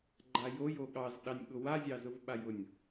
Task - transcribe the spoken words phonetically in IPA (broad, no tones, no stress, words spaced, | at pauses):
ɡ͡ǃajoj oɠɑzɗɑnʲ ɠʊwazʲɑzʊv ɓajʊnʲ